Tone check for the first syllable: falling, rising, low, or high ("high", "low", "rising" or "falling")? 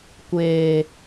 low